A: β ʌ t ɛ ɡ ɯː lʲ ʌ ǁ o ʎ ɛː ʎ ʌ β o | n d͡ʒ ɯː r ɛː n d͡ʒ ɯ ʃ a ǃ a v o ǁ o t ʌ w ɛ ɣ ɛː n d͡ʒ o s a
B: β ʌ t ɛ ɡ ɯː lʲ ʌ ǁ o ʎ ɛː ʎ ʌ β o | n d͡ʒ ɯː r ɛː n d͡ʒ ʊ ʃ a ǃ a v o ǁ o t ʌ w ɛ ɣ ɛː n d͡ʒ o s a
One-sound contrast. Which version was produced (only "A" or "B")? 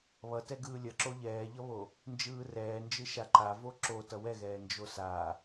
A